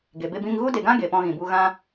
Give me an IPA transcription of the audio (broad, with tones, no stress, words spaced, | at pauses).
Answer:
ɡe˨be˧bĩ˧ŋɣu˦ de˨ɡã˦ ɡe˨pɔ̃˧ɣĩ˨bu˧ ɣã˧